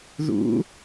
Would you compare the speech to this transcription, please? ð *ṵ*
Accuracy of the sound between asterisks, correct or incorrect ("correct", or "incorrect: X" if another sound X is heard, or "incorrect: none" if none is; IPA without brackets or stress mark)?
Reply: correct